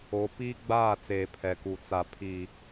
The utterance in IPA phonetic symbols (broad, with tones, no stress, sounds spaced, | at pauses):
o˨˦ p iː˦ ɡ͡b aː˦˨ t͡s eː˨ pʰ ɛ˨ k u˨ t͡s a˨ pʰ iː˨